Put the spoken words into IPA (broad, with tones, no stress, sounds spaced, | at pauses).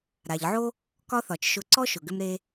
ɾ a˩ ʎ ʕ o˥ | k ɒ˥ θ ɒ˩ t͡ʃ ʃ ʊ˧ ǀ ɔ˥ ʃ ʊ˩ ɡ ʏ˧ m ɾ e˧